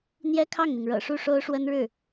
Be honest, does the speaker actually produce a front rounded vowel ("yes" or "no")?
no